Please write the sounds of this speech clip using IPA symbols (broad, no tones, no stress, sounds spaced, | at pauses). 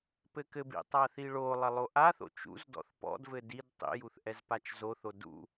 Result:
p ɘ k ɘ b ḭ tˤ a θ i ɭ o lˠ ɐ lˠ o ʔ a θ o̰ t͡ʃ ṵ z d ɔ̰ θ p ɔ̰ d v ɘ d i d tˤ ḭ j u θ ʔ ɛ z p a t͡ʃ z o θ o d ṵ